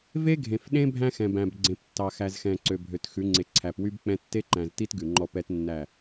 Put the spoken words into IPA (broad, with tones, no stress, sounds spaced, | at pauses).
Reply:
v e˦ ɡʱ ẽ˨ f ɗ ẽ˦ bʱ æ̃˦ x ɛ̃˨ b æ̃˨ b ɡ͡ǀ ẽ˨ p tː ɑ˨ x æ˨ z x ɛ̃˨ ǀ ø˨ bʱ ø˨ t x ʉ˨˦ ŋ͡ǀ e˨˦ ǀʰ æ˨ p w y˦ b k͡p ɛ̃˦ tː e˦ ǃ æ̃˨ z t i˦ t ɡ ʉ˨ ŋ͡ǃ ɔ˦˨ p ɛ˦ t nː æ˦˨